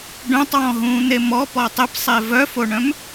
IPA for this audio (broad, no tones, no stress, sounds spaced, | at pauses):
ɖ œ̃ tˤ w ɔ̃ ɦ ũː n̪ e m ɔ p ɔ tˤ ɘ p sˤ e v œ f o ɳ œ̃ m